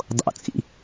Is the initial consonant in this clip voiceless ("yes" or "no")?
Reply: no